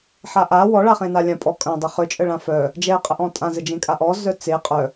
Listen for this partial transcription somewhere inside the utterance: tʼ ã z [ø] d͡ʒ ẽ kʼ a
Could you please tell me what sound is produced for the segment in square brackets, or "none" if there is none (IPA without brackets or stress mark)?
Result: ə